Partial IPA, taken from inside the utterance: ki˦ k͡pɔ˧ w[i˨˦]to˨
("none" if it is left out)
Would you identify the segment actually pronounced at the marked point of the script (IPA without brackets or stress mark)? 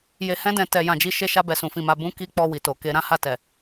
i˨